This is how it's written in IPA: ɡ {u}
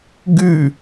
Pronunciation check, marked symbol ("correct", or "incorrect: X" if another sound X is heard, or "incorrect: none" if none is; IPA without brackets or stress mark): incorrect: ʉ